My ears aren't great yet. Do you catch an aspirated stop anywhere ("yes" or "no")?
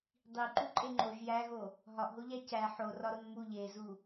no